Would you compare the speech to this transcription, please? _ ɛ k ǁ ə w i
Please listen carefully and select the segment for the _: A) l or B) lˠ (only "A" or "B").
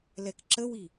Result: A